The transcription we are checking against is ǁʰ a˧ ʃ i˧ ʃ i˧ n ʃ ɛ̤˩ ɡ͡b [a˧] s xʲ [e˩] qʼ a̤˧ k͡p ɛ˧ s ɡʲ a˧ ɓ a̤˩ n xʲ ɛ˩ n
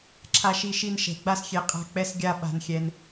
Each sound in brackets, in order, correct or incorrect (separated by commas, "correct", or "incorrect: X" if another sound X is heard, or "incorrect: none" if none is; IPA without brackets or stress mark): correct, correct